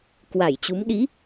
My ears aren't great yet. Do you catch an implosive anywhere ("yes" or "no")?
yes